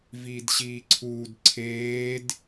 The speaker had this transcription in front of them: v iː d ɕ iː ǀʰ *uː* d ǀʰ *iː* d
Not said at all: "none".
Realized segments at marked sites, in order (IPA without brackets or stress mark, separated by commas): uː, eː